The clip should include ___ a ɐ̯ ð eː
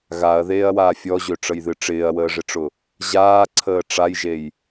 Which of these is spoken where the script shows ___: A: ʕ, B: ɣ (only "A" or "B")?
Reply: B